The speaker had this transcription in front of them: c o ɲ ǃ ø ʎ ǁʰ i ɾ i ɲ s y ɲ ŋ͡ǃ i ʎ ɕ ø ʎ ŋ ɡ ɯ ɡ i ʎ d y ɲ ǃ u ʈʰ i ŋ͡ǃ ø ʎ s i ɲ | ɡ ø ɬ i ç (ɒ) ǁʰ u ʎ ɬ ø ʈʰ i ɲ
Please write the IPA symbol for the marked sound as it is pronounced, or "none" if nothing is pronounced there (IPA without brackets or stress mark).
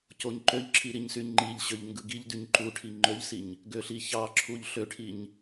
ɑ